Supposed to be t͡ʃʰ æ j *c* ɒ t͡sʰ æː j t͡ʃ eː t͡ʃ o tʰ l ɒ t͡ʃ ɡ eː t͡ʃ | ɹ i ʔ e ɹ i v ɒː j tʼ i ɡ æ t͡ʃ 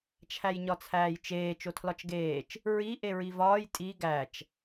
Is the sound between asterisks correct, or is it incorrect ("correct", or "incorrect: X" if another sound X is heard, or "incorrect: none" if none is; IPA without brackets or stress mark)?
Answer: incorrect: ɲ